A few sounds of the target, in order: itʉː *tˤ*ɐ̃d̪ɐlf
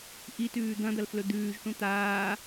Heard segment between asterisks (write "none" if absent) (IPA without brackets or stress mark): d̪